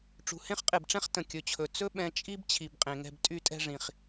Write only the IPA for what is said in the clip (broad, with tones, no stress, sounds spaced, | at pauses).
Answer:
ʈ͡ʂ ṳ˩ h ẽ˥ χ qʼ e˩ b ʈ͡ʂ ɛ̃˥ χ t ə̃˩ kʲ ɵ˩ t͡ɕʰ ɵ˩ t͡s ɵ˥ ɓ ɛ̃˧ t͡ʃʼ i˥ b t͡ɕʰ i˩ b qʼ ẽ˩ ŋ ɛ̤˧ b tʼ y˥ tʼ ɛ̤˥ ʐ ĩ˩ χ